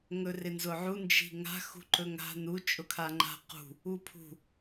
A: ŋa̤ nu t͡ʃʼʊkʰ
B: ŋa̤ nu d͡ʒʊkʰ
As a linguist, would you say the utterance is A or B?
A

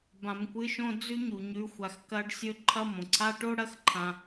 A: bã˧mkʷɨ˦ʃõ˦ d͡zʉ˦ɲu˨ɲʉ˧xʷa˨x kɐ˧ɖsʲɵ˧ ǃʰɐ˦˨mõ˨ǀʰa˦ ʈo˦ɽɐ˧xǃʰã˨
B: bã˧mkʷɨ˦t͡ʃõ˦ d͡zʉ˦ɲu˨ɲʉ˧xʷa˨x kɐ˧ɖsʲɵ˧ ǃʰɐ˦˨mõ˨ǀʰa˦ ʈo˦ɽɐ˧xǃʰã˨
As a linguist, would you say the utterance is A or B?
A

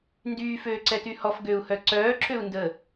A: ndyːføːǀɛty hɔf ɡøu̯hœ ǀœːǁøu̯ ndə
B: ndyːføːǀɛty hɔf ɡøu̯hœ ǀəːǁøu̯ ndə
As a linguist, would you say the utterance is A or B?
A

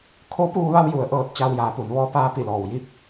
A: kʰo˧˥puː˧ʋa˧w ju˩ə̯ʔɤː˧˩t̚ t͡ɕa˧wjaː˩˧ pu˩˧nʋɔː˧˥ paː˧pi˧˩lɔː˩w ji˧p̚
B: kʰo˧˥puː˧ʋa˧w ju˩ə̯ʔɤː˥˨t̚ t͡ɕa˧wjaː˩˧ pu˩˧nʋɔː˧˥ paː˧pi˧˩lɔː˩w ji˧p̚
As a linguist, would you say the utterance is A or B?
A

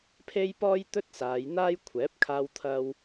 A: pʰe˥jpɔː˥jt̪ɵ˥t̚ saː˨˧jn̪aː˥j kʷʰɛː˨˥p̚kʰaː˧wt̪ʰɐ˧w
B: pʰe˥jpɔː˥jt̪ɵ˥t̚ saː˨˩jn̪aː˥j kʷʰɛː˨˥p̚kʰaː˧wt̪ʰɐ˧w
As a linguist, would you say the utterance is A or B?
A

